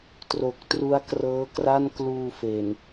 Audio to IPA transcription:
tro˨˩k̚tru˦˥a̯ krɤː˦˥kra˥˩n kluː˧fe˨˩n

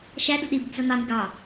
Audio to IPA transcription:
ʃæ duɗibɪb zʌn̪ɑn̪ɪɡ ɑ

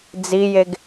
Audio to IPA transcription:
d͡zijeɡ

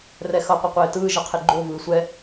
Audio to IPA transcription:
rɛxʌ qʷʌqʷeːtɯː ʒʌqʰeɡ͡ǃo vɯːsʷɛ

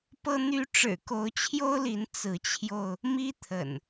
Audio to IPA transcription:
pɤ˦n̪y˦ ʈ͡ʂɻ̩˨˩ko˨˦ʊ̯t͡ɕʰjo˦ʊ̯li˨˦n t͡sɹ̩˨˦t͡ɕʰjo˧ʊ̯ | mi˦t̪ʰə̰˨˩n

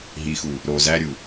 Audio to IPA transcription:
ɦixu | ɾo zæɾʲu

